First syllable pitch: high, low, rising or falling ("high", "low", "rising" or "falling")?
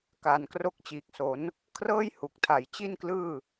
low